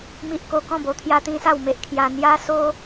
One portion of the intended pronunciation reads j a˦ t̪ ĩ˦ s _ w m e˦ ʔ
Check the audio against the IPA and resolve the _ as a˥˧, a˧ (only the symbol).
a˥˧